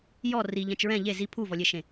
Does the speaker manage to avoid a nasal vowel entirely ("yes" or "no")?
no